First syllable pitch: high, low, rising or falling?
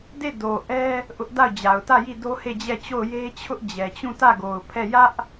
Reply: falling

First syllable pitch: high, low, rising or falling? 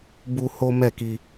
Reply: high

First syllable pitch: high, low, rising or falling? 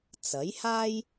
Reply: rising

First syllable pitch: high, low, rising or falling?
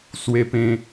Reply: high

